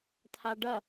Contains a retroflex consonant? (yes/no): yes